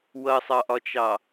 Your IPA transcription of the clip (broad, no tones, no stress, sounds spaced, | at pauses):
w ʌ sˤ ɑ ʔ ɒ t͡ʃ ɑ